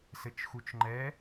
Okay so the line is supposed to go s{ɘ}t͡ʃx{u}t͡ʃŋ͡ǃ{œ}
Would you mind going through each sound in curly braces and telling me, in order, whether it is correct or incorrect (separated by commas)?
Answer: correct, correct, incorrect